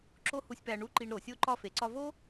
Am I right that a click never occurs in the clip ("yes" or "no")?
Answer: no